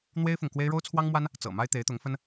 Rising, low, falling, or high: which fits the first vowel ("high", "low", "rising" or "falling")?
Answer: high